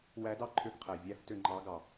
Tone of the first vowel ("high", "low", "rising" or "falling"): rising